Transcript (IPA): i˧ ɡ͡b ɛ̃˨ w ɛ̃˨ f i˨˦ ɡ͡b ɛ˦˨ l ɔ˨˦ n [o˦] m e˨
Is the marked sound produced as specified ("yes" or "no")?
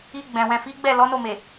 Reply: no